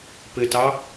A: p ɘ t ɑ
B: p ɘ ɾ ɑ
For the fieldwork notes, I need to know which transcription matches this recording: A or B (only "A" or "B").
A